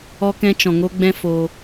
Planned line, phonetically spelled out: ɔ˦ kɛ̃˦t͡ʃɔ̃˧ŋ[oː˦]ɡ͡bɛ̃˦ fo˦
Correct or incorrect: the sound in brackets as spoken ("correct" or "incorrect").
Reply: incorrect